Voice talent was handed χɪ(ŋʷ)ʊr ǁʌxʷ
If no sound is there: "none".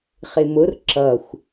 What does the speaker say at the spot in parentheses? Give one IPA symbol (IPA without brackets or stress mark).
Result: m